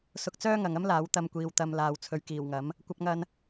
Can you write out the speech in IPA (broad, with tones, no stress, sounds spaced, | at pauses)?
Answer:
s ʊ˧ k̚ t͡s œː˥ ŋ ɐ˨ ŋ ɐ˥ m l aː˨˧ w t̪ ɐ˧ m kʷ iː˨ w t̪ ɐ˨ m l aː˨ w t͡sʰ ɵ˨ ɥ k iː˨˩ w ŋ ɐ˨˥ m | kʷ ɐ˧ p̚ ŋ ɐ˧ n